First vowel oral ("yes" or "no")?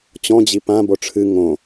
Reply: no